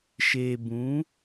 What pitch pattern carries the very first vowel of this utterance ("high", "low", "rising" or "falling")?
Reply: low